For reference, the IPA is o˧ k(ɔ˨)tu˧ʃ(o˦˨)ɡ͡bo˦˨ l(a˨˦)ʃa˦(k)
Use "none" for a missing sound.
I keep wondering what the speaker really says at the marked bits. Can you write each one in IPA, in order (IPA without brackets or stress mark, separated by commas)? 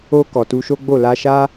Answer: ɔ˨, o˦, a˧, none